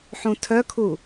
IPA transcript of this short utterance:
ħ ũ tʰ œ kʰ u

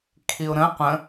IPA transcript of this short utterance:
kʰ i ʊ̯ ɾ ə̃ qʷ ə̃

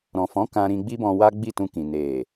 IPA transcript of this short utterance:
ɾ ɔ̃˨ f ɔ̃˨˦ k ã˧ ɾ ĩ˧ ɡ͡b i˦ b ɔ̃˧ w a˦ ɡ͡b i˦˨ t ũ˧ k ĩ˨ n e˨

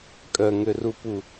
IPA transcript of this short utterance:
kʼ œ ŋ ø r u p u

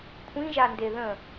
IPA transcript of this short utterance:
kʷʰ ĩ ʒ a n d e ð ə̃

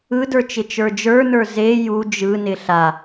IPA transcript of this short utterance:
ɯ d ə˞ t͡ʃ ɪ t͡ʃ ə˞ d͡ʒ ə˞ n ə˞ z e j u d͡ʒ ɯ n ɪ ɬ a

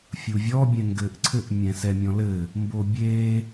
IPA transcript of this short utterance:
fʲ u vʲ ɔ bʲ ɛ̃ ŋ ɡ ɘː ʔ ǀʰ ɘ ʔ mʲ ɛ̃ s ɛ mʲ ɔ̃ l ɘː | m b o bʲ eː

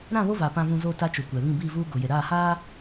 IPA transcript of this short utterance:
ɾ ã˦˨ β o˦ v a˨ p ã˨ v ũ˨ z oː˨ t a˦ t͡ʃ o˨ kʷ ɛ˨ β ĩ˦˨ b iː˦˨ v uː˦ ɡ o˨ j e˨ ɾ aː˦˨ h aː˦

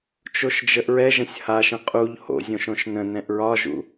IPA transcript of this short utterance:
t͡ʃ o ʃ d͡ʒ ə ʔ ɹ ɛ ʒ ə̃ sʲ h a ʃ ə̃ qʼ u ʎ h o̰ zʲ õ ʃ õ ʃ n ə̃ n ɛ̃ ʔ ɹ ɒ ʒ ṵ

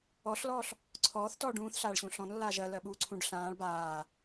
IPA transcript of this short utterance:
ɔ ɬ l ɔː ɬ | ǀʰ ɔː θ t ɔː ɖ ũː θ ɬ aː ɭ ɕ ũ ɬ ɔ̃ n lː aː ʒ ɜ l ɜ ɓ uː ǀʰ ũ ɖ ɬ ãː ɭ b aː

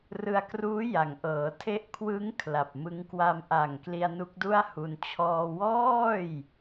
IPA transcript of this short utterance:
r ɯ˧ a̯ k r uː˦˥ j a˩˦ ŋ ʔ ɤː˩˦ tʰ e˥˩ ʔ kʰ w ɯ˦˥ ŋ kʰ l a˨˩ p̚ m ɯ˦˥ ŋ k w a˧ m ʔ a˨˩ ŋ k l i˧ a̯ n u˦˥ k̚ d u˥˩ a̯ h u˧ n t͡ɕʰ ɔː˧ w ɔː˥˩ j

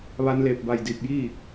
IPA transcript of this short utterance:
ʋ a˧ n l e˧˩ p̚ b a˧˩ j d i˧˩ p̚ j i˥˨

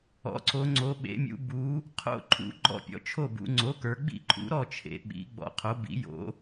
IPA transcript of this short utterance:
ɔ̰˩˥ ǀ o˩˧ ŋ͡ǀ o˩˧ ɓ ḛ˩˧ mʲ ṵ˩˧ b u˩˥ | qʰ o̰˥˩ ǃʰ ṵ˩˥ ɡ͡ǃ ɔ̰˥˩ pʲ ɔ̰˩˥ t͡ʃʰ o˥˩ b ṵ˩˧ ŋ͡ǀ o˩˥ k ə˞˩˧ ɡ͡b ḭ˥˩ ǃʰ ṵ˩˥ ɾ ɔ˥˩ t͡ʃʰ ḛ˩˧ ɓ ḭ˩˥ ɡ͡b ɔ̰˩˧ qʰ o˩˥ b ḭ˩˥ j o̰˩˥

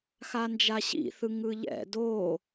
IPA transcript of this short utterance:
x a n d͡ʒ a ɕ ḭ θ ɯ ŋ ɯ ʎ ɛ̰ d o

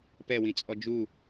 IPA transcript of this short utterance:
p ɛ w ĩ t͡sʼ ɔ d͡ʒ u

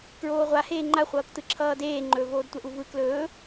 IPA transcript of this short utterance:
k ɹ oː ʁʷ a h eː ŋ͡ǃ a χʷ ʌː k t ɯ ǁʰ ʌː d eː ŋ͡ǃ ɵ v oː d tʷ ɛ ʔ u v ɯ k l ɵː

